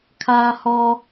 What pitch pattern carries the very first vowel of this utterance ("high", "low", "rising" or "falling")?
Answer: high